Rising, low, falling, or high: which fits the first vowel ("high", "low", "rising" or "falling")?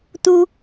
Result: high